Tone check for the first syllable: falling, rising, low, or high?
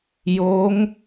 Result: rising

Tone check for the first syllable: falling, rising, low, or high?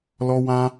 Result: high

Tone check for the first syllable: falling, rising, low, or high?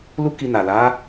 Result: high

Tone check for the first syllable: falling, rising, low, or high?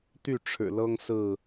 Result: falling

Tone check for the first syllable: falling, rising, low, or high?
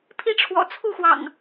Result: high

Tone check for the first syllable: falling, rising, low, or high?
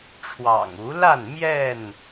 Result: low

